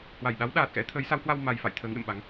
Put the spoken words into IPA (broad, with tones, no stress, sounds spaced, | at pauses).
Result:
h w a˧˩ j ɗ a˨˦ w ɗ aː˨˩ t̚ x ɛ̰˧˥ t̪ʰ əː˨˦ j s a˨˦ w h w a˧ w m a˨˩ j f a̰˧˨ j t̪ʰ əː˨˦ ŋ ɗ ə̰˧˨ m ɓ a˨˦ ŋ